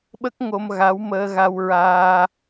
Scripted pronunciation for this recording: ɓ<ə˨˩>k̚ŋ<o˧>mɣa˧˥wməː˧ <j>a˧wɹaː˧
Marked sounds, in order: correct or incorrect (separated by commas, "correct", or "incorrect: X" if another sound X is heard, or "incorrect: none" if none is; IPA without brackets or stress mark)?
incorrect: ə˦˥, correct, incorrect: ɣ